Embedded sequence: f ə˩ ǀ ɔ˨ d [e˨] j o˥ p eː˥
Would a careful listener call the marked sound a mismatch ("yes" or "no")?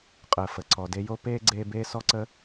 yes